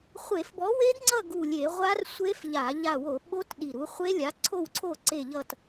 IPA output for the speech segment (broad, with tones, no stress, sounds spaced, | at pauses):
χʷ e˧˩˧ f b ɔ˨˥ w e˦˥ d ŋ͡ǀ ʌ˥˨ ɡ u˧˩ lʲ e˧˩˧ ʁʷ a˦˥ r sʷ e˦˥ f ʎ a˧˩˧ ʎ a˧˩ w o˧˩˧ ɓ o˦˥ t ɗ i˧˩ ɾ u˨˥ χʷ e˦˥ lʲ a˨˥ ǀʰ o˥˨ w ǀʰ o˥˨ ǀ e˥˨ ʎ ʌ˥˨ t